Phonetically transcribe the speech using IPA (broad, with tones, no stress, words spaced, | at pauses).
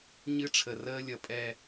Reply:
ɲɨ˦ʈ͡ʂʰə˨ rəː˦lʲʌ˨pʼɛ˦